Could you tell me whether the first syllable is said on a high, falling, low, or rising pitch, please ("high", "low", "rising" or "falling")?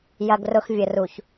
low